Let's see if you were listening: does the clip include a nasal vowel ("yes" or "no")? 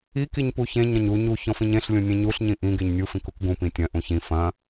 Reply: yes